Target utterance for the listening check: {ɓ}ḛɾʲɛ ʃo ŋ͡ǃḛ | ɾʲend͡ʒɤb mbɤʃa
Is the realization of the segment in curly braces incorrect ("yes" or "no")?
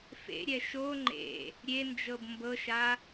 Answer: yes